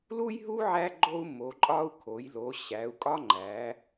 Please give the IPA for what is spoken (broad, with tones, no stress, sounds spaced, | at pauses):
l u˦ j ɦ u˦ ʕ æ˦ ɡ͡ǃ o˦ u̯ m o˩˧ ǃʼ ɒ˦ u̯ kʰ o˩˧ j l o˩˧ ɕ æ˩˧ u̯ kʼ ɒ˦ ŋ͡ǃ æ˩˧